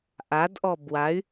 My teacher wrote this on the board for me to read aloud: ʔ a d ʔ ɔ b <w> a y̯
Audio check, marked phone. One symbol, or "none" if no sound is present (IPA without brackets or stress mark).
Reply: w